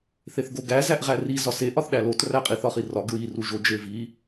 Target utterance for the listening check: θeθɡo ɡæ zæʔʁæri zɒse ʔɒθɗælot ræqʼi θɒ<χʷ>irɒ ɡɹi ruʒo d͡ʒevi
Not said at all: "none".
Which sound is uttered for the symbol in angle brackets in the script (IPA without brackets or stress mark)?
χ